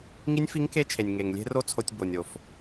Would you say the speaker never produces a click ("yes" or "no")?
yes